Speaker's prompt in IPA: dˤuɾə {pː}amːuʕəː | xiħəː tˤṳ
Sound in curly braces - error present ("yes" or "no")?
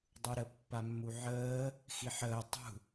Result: no